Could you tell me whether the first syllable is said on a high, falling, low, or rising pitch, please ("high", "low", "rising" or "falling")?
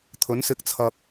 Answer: rising